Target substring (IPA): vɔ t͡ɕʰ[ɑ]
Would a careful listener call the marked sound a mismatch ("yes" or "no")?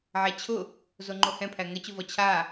yes